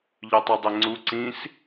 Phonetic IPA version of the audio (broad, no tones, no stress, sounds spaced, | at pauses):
ʎ œ tˤ o dˤ e ŋ͡ǀ u ǀ ĩ s